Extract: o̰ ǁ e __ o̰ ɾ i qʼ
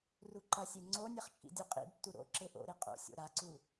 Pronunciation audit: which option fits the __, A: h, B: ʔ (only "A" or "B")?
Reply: B